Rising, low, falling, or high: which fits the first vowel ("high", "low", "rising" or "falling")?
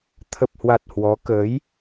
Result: low